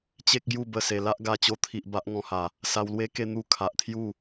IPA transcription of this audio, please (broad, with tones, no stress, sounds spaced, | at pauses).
t͡ɕ e˦ k̚ ɡ j u˥˧ b ə˥˧ s e˧ l a˦ ʔ ɡ a˧ t͡ɕ o˧ t̪ʰ i˨ ʔ b a˦ ʔ ŋ ɔ̃˧ h a˨˩ | s a˧ w l w e˦ k e˥˧ n̪ u˥˧ kʰ a˨ ʔ t̪ʰ j u˥˧